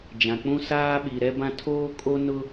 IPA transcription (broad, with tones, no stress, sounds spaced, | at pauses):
d͡ʒ ã˨ k͡p ũ˦ s aː˦ ɓ i˨ ɾ ɛ˦ b ã˦ tʰ oː˦ kʼ o˦ n ʊ˦